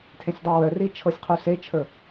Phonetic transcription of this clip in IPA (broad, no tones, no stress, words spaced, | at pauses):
tʰẽsʲdˤɤwœri t͡ʃʰɤsʲqʰuset͡ʃʰə˞